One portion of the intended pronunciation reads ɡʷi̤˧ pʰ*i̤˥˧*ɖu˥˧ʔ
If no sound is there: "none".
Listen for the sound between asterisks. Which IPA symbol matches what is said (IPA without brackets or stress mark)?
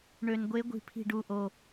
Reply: i̤˥˧